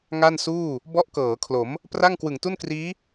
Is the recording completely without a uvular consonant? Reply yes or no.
yes